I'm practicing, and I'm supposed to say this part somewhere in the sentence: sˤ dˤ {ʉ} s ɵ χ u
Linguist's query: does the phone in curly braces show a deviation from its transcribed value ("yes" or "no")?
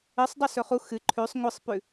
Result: no